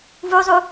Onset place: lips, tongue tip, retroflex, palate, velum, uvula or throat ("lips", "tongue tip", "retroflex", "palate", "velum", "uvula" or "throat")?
lips